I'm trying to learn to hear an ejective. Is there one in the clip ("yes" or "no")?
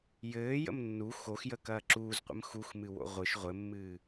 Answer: no